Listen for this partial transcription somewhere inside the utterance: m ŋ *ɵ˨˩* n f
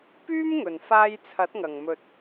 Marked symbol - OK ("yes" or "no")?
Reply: yes